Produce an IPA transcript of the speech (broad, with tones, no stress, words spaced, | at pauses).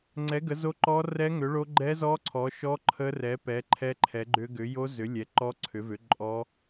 ŋ͡ǀɛ˨˥ ɡə˨˥zo˦˥ ǃɔ˦˥rɛ˦˥ŋʏ˨˥ɭo˦˥ ɡ͡ǃɛ˦˥ zɔ˦˥ ǀʰɔ˨˥ ʃɔ˦˥ ǃʰə˦˥rɛ˨˥pɛ˨˥ ǃʰɛ˦˥ǃʰɛ˨˥ɡ͡ǃʏ˦˥ ɡʏ˨˥ jo˦˥ zʏ˨˥lʲɛ˨˥ǃɔ˦˥ ǀʰʏ˨˥ vʏ˨˥ ǃʼɔ˦˥